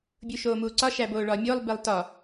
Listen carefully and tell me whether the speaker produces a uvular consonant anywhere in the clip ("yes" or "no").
no